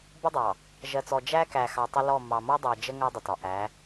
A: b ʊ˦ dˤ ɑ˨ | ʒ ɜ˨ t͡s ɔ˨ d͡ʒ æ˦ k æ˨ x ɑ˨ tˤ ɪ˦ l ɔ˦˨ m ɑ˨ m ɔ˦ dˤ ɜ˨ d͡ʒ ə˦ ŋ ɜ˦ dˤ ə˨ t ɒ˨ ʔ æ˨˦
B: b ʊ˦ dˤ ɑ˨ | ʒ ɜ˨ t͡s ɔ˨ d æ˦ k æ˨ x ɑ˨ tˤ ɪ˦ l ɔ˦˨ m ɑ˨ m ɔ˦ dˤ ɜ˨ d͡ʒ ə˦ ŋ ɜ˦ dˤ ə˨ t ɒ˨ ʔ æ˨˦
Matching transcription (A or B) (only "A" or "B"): A